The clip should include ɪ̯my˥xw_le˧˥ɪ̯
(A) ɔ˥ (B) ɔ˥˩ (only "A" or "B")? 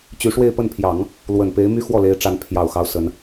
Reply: B